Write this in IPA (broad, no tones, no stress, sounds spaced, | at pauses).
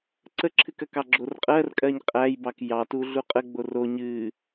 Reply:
ǀ ə ǁʰ ɨ k ɜ k ɑ ɡ͡ǁ o r qʼ ɜ r kʼ ɜ ɲ qʼ æ j b ɑ k j ɑ t u ɮ u qʼ ə ɡ͡b o r o ɲ ɨ